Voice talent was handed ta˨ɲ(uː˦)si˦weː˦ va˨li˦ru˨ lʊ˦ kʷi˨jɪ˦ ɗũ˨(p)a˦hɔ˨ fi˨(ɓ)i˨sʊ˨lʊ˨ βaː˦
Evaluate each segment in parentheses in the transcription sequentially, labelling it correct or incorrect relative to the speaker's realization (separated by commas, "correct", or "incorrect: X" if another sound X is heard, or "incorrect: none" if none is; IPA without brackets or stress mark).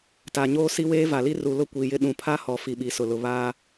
incorrect: oː˦, incorrect: pʰ, correct